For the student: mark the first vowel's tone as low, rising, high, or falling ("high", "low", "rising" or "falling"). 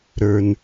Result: low